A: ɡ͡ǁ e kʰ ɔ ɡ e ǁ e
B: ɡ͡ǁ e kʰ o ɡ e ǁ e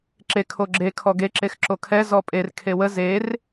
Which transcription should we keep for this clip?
A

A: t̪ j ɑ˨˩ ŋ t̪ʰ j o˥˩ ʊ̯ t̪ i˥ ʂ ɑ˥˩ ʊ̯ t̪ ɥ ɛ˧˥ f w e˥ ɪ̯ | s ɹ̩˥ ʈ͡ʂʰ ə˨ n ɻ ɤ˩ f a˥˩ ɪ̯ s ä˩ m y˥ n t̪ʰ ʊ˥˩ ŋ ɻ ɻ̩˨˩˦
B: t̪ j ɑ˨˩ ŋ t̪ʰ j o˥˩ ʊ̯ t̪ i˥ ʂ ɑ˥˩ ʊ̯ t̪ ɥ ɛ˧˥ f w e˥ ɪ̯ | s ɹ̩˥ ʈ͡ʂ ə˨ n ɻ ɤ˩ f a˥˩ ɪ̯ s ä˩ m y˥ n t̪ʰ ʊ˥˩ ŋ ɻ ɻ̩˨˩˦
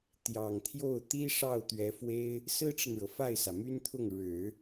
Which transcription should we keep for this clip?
B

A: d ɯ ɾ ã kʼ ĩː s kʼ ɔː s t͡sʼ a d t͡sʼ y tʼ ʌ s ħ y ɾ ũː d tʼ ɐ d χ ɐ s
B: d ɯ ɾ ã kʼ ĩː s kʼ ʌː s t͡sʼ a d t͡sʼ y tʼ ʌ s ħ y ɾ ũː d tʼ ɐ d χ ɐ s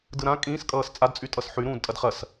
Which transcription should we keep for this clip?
B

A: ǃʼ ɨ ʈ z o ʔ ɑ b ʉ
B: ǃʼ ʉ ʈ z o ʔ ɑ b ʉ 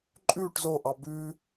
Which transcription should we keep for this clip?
B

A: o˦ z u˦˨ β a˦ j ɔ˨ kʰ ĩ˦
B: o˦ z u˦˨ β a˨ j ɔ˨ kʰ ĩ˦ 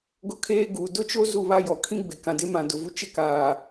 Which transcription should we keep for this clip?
A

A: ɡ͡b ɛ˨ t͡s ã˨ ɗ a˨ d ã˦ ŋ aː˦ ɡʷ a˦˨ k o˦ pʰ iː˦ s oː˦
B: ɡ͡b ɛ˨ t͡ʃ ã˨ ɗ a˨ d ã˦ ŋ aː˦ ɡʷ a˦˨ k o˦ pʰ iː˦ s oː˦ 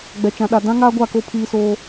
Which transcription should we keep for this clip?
B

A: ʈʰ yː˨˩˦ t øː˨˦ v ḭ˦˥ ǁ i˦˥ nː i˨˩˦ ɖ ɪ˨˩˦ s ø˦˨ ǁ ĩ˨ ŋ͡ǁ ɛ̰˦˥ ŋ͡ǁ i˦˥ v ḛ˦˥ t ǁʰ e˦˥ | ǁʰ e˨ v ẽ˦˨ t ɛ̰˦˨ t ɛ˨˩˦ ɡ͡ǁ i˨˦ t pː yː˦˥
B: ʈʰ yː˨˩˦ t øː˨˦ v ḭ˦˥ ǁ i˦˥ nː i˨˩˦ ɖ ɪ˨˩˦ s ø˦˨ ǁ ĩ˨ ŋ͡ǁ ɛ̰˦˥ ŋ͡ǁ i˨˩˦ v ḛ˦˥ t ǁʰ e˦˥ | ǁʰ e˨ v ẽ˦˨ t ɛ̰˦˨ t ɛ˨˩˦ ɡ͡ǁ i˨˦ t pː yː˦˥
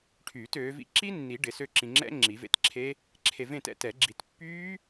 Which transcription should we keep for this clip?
B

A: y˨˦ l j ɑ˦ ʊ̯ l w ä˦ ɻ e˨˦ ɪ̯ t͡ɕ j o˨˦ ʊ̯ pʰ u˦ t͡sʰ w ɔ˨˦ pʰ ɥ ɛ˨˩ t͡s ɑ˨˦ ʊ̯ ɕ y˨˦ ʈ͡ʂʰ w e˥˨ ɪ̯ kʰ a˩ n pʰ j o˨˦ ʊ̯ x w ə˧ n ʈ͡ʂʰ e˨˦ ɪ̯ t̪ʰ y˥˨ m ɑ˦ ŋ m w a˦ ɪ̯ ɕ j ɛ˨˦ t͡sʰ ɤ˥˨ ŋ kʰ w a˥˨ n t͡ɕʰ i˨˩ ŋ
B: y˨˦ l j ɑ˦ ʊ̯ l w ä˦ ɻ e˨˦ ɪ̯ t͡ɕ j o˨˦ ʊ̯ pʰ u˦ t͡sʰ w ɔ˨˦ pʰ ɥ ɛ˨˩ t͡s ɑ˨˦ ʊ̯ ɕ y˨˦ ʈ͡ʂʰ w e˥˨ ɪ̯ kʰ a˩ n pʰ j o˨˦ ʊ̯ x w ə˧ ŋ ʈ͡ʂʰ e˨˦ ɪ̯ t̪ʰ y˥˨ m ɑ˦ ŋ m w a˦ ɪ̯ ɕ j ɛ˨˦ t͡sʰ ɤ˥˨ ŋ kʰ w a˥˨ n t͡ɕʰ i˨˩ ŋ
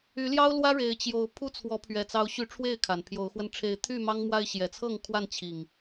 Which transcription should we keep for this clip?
A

